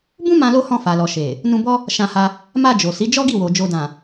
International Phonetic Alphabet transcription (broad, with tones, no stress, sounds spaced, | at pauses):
b ũ˦ m ã˧ l o˧ h ɔ̃˧ f a˨ l ɔ˨ ʃ e˨ | n ũ˧ b ɔ˦ | ʃ ã˧ h a˧ | m a˧ d͡ʒ o˨ s i˨˦ d͡ʒ ɔ˦ ɡ i˦˨ w o˨ d͡ʒ o˨ d ã˨